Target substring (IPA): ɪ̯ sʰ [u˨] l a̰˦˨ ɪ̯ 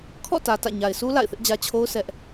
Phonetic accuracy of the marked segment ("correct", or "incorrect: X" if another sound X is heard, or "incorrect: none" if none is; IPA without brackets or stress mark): incorrect: u˦